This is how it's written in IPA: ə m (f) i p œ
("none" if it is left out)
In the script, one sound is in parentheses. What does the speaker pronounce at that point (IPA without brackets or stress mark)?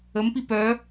p